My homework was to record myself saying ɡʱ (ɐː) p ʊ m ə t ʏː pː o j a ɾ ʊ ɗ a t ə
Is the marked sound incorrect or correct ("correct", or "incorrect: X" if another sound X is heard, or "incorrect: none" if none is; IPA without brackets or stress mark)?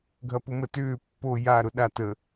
incorrect: ɐ